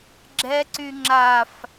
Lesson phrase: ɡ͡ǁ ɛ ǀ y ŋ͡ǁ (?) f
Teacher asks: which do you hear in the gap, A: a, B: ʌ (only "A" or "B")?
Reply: A